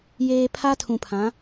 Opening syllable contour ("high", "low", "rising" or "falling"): low